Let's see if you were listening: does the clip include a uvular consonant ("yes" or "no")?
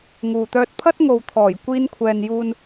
no